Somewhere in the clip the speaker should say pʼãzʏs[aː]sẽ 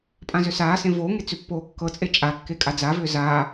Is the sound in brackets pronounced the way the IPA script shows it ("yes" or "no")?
yes